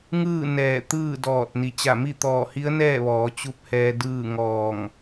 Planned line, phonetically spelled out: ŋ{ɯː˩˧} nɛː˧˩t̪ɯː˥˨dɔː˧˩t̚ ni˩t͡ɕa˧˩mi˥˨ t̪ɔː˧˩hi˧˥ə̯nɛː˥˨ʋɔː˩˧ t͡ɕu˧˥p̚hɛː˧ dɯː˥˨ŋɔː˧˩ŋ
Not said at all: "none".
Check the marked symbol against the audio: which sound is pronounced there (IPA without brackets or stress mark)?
ɯː˥˨